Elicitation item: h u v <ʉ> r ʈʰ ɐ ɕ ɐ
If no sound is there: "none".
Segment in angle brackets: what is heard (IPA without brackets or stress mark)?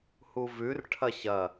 ʉ